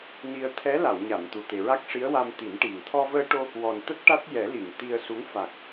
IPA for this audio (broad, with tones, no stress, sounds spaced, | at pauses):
n i˧ ə̯ t̪ʰ ɛ˧˥ l a˨˩˨ w ɲ a˨˩˨ m t̪ u˨˩ t̪ e˨˩ ɹ a˦˥ k̚ ʂ i˧˥ ə̯ w a˧ m t̪ i˨˩˦ n ʈ i˨˩ ŋ t̪ʰ ɔ˧ v əː˧ ʈ o˧ | w ɔ˨˩ n t̪ ə˦˥ k̚ ʈ a˦˥ t̚ j ɛ˨˩˦ l i˨˩˨ ŋ t̪ i˧ ə̯ s u˧˥ ŋ f a˨˩ k̚